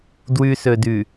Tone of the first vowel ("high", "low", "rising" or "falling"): low